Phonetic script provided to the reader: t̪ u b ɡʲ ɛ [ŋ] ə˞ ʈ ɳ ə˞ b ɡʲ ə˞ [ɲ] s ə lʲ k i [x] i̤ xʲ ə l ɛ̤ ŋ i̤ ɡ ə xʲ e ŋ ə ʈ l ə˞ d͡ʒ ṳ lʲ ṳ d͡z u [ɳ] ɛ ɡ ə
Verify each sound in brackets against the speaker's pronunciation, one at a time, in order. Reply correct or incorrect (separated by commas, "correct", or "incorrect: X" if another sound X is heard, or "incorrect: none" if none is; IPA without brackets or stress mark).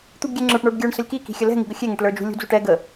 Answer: incorrect: ŋ͡ǁ, incorrect: ɳ, incorrect: k, incorrect: ʈ